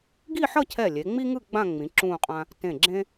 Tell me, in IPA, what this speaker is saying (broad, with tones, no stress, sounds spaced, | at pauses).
ɡ i˥˧ ħ ʌ˥˧ cʰ ɛ˧˩ lʲ e˩˧ ŋ͡m i˥ ŋ ɯ˥˧ ɡ͡b ã˥˧ ŋ͡m ĩ˩˧ ǁ ũː˥˧ qʼ ã˥ | t ẽ˧˩ ɡ͡ǁ ẽ˥